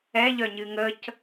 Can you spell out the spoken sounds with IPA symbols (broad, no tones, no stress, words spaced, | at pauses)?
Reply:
ɛʎœ ɲɨŋəc